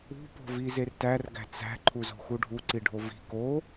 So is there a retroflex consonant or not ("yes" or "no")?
yes